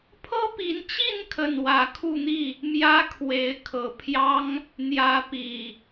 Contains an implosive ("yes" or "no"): no